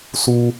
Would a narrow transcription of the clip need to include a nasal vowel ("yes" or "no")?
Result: no